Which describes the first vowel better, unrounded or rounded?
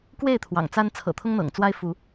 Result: unrounded